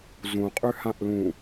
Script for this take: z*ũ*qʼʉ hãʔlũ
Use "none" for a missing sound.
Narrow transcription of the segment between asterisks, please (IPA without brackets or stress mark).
ũ